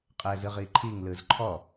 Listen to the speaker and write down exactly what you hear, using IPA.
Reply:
qʼɛzɯʁiǃʰiŋ lɯzǃʰɔ

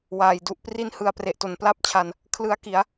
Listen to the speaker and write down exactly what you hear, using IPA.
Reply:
waː˩˦jdu˨˩ʔpri˥˩n hɯ˧a̯pre˨˩ʔto˩˦n pla˥˩p̚t͡ɕʰa˧n | kʰlɯ˦˥a̯ki˩˦a̯

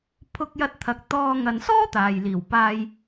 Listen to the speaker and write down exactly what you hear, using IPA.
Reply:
pʰʊ˧k̚jɐ˧t̚t̪ʰɐ˨k̚ t̪ɔː˧ ŋɐ˨nsɔː˥ t̪aː˨jliː˨˩wpaː˧j

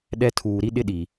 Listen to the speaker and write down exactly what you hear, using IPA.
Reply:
ɗɛ˦ tʰuː˨ɾi˦ɗɪ˦ ɗi˨

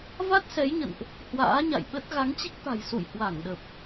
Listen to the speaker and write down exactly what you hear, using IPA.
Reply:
va˦˥t̚sɛ˨˦jɲə̰˧˨nʔ | hwa̰ː˧˥ɲa̰˧˨jɓə˦˥t̚ ɣa˨˦ŋt͡ɕi˦˥k̚t̪a̤˨˩j sṵ˧˨j hwa˧˩ŋɗə˨˩p̚

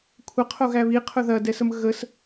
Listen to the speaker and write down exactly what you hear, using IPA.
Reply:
kʷʰəqʰoɣæ βiqʰʊ ðɐdɛsəm ɣəs

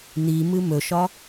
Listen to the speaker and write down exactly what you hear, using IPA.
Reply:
n̪i mɨmɵʃɒ

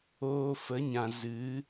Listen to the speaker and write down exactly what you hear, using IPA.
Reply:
oː˧ fə˨˦ɲã˨ zɨ˨˦

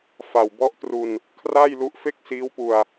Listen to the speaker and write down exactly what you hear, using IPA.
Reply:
fa˨˩wbɔ˦˥ʔtru˧n | kʰraː˥˩jlu˦˥ʔ fe˥˩k̚siː˦˥wpu˧a̯

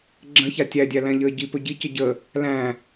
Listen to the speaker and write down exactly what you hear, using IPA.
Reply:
ɡ͡ǁə̃ça tʲædʲælæ̃ʎəː ɟipɵ ɟicə ɟə | læ̃

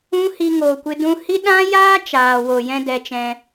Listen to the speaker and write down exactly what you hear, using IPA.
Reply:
ũ˦hi˧ŋoː˨kʷɨ˧ dũ˧hi˦ ɗã˦jaː˦ t͡ʃaː˨wo˨jɛ̃˦ dɛ˦t͡ʃɛ̃˦

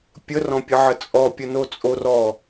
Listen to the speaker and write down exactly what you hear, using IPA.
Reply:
pʲərɔ̃pʲəʕə t͡sʼɔpʲəno t͡sʼor ɔ

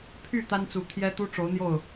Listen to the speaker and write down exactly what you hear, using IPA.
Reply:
pʰy˥˩ t̪a˥nt͡su˧˥t̪ʰjɛ˥ t̪u˥ʈ͡ʂo˧˥ʊ̯n̪jo˥˩ʊ̯

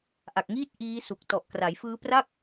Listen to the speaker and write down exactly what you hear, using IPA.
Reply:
ʔa˨˩k̚ŋiː˥˩t̚ ʔiː˦˥su˨˩k̚ tɔ˨˩ʔkra˩˦jfɯː˦˥pra˥˩k̚

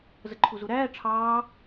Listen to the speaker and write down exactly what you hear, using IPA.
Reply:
zəǃʰuzuɾæː ʈ͡ʂʰɑː

